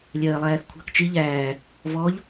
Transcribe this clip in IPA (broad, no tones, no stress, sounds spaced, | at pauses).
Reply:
lʲ ɜː lˠ æː θ kʷʰ ɑ̤ k t͡ʃ i ʎ æː | v ɔ ʎ